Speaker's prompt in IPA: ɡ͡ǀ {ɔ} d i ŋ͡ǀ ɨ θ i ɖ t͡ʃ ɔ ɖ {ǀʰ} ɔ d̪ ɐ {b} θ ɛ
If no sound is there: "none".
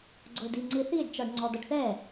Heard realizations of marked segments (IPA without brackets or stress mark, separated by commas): o, ŋ͡ǀ, ɖ